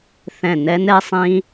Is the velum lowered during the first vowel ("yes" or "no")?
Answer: yes